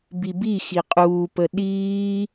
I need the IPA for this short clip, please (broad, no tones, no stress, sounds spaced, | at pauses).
b i b i x i qʼ uː p ə ɗ iː